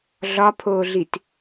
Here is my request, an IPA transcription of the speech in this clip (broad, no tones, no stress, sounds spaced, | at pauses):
ɮ ɒ pʰ oː ɮ i t